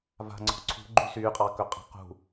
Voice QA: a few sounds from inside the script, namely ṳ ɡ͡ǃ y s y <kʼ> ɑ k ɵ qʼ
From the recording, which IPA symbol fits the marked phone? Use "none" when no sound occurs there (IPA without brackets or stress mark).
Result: qʼ